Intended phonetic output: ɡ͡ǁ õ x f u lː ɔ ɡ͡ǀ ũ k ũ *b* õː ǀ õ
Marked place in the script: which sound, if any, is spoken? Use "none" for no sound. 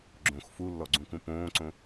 p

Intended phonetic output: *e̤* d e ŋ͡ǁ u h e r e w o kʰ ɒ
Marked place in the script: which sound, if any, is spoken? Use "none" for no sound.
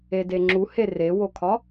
e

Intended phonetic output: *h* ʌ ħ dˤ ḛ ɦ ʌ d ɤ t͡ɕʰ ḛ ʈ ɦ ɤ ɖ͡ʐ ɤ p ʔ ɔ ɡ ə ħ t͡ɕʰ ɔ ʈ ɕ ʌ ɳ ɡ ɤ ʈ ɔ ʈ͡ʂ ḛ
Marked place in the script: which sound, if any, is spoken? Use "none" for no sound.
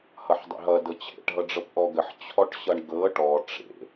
h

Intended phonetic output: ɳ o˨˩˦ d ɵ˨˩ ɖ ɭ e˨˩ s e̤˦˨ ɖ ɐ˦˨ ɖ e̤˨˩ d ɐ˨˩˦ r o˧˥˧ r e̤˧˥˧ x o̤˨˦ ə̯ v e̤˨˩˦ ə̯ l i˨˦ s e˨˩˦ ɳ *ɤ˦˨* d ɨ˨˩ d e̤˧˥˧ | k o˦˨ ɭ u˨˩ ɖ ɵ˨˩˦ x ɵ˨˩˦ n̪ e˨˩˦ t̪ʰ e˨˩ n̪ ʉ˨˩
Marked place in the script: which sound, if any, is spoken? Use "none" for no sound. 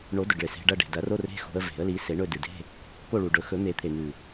ɵ˦˨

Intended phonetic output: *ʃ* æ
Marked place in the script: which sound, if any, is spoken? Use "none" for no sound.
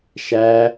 ʃ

